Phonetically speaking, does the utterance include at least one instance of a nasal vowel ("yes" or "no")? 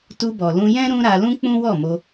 yes